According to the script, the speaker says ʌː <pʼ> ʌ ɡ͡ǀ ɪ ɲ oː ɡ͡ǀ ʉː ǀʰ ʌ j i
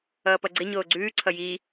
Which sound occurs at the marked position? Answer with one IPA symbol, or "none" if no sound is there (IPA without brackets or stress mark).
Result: p